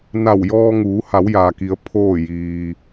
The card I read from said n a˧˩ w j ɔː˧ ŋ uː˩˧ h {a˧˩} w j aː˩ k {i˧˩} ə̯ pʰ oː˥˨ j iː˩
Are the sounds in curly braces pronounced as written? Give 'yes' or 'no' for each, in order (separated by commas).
no, no